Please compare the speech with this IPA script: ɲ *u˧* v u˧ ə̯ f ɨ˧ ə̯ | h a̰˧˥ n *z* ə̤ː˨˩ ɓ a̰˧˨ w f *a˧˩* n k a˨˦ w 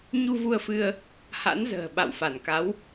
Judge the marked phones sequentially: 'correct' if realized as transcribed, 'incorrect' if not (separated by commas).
correct, correct, correct